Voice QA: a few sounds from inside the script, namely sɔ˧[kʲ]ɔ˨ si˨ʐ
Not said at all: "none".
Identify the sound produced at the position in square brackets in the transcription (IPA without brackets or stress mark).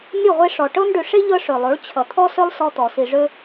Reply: t̪